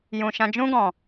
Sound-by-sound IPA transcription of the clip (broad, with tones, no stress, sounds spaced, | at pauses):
j ũ˨ ʃ ã˧ d͡ʒ ũ˦ ɡ ɔ̃˨